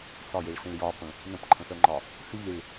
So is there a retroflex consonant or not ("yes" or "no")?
yes